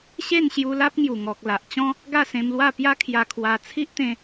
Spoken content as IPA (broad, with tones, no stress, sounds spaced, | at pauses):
ɕ e˥˧ n ɕ j u˧ l a˦ p̚ ŋ j u˨˩ ŋ ɔ˨ k̚ l a˨ ʔ t͡ɕ ɔ̃˦ | ɡ a˥˧ s ẽ˧ m l w a˥˧ p j a˦ kʰ j a˧ kʰ w a˧ t͡sʰ i˦ ʔ t̪ ẽ˧